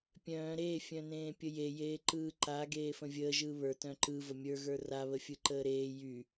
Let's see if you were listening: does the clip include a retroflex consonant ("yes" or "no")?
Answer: no